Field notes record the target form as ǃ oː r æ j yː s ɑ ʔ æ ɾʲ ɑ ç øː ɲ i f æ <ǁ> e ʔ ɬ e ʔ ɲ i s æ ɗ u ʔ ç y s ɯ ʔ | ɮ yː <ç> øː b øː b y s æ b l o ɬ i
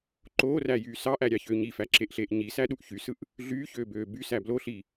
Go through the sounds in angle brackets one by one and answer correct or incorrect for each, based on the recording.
correct, correct

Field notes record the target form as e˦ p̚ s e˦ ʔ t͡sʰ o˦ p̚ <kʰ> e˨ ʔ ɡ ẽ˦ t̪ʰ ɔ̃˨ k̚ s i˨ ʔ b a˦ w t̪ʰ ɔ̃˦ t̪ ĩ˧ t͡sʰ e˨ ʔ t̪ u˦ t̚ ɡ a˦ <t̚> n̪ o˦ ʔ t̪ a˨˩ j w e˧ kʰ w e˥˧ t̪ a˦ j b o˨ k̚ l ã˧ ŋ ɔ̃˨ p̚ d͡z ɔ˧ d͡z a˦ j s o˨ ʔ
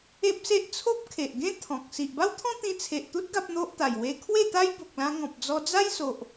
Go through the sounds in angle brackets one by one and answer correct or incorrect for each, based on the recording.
correct, incorrect

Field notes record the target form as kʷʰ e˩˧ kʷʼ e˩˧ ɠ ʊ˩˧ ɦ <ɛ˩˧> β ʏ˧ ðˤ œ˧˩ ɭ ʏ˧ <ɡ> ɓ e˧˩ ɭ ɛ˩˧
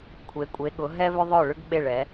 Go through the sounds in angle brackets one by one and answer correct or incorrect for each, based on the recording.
incorrect, correct

